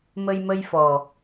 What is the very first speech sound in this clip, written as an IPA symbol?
m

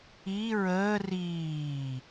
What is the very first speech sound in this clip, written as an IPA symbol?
i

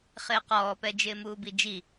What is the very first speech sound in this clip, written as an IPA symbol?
χ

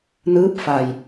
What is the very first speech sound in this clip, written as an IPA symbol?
n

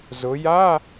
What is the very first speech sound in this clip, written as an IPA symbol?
z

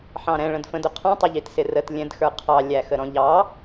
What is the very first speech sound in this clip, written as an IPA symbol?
ħ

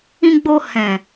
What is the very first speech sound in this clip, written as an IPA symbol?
ĩ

